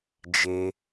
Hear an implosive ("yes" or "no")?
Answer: no